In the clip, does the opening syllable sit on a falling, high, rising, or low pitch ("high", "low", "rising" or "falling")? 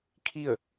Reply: falling